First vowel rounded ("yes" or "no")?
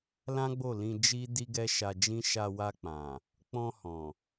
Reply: no